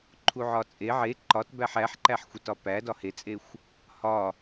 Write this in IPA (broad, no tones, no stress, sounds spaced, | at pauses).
ǃʰ u ʕ ɒ t͡sʼ e ʕ e ǃ ɒ t b æ ħ æ ħ ǃ æ ħ xʷ i t ɒ p æ d ɒ h e t͡sʼ e xʷ | h ɒ